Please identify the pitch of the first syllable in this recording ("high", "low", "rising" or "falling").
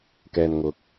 low